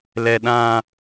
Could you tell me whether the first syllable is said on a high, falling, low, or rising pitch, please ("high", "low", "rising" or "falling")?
low